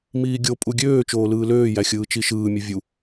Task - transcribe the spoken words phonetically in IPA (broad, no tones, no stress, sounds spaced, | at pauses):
m iː ɡʲ o pʼ u ɡʲ øː t͡ʃ oː l ɯː l øː j æ xʲ ɯː t͡ʃ i ʃ ɯː mʲ u vʲ u